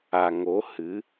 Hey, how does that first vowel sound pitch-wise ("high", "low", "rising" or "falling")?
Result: low